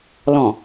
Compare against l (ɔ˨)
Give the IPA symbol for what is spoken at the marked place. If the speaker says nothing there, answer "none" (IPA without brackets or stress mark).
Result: ɔ̃˨